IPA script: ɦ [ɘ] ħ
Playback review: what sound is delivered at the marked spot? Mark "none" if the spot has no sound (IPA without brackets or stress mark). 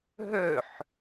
ø